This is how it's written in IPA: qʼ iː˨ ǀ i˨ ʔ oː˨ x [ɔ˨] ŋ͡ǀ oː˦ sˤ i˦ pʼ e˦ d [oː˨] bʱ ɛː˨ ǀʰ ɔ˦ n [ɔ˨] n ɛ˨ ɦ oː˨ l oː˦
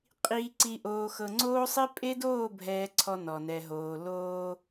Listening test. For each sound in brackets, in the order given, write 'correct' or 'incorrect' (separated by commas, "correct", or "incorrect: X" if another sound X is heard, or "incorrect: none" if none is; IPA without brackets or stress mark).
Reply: incorrect: ɤ˨, incorrect: oː˦˨, correct